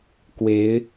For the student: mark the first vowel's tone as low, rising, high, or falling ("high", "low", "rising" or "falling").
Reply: rising